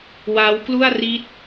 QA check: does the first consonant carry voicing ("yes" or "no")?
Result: yes